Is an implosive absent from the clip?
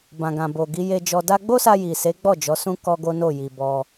yes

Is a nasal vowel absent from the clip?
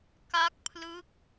yes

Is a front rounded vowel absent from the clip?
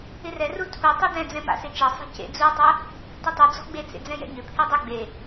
no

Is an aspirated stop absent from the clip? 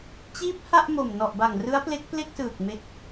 yes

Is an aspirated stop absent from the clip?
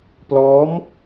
yes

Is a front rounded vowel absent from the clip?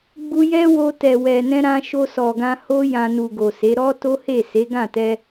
yes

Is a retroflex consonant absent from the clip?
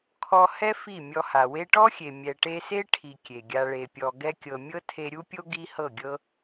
no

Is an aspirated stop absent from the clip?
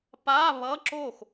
yes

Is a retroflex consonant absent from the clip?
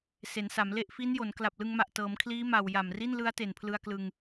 yes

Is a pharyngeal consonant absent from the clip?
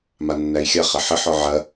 no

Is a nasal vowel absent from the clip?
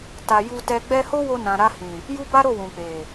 no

